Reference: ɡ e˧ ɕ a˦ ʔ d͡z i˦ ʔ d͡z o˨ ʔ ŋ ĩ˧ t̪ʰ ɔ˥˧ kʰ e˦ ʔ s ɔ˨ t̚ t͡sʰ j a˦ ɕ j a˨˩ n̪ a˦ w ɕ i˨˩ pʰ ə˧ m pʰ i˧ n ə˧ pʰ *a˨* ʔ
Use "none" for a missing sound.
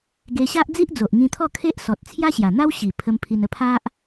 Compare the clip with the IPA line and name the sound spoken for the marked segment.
a˦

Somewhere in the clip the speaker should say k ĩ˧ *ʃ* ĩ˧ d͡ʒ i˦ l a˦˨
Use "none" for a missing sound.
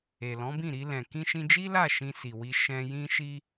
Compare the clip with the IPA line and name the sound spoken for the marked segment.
ʃ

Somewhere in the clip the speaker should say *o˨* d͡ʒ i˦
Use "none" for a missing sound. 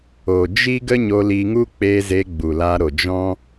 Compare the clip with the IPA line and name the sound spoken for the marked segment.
o˨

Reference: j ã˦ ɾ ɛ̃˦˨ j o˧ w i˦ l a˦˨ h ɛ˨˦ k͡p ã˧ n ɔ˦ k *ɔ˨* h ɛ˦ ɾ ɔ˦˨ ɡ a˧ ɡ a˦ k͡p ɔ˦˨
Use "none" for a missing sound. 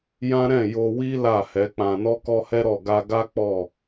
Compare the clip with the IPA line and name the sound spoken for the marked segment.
ɔ˦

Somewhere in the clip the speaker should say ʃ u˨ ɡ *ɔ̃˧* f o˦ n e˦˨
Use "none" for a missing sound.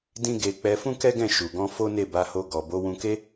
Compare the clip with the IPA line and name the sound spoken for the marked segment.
ɔ̃˧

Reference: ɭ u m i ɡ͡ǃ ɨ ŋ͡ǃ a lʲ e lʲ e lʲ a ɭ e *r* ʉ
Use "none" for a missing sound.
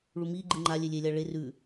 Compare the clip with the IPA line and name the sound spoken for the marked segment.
r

